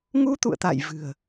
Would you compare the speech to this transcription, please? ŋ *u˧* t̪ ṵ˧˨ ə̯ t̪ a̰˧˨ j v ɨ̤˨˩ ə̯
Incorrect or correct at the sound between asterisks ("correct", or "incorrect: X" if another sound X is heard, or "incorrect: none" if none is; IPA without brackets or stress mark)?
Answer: correct